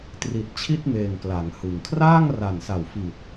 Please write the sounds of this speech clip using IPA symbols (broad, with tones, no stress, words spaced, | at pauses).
tri˨˩t̚t͡ɕʰi˥˩t̚meː˨˩ŋ kla˩˦ŋhɯ˨˩ŋ kʰraː˥˩ŋra˨˩nsa˨˩wfi˨˩t̚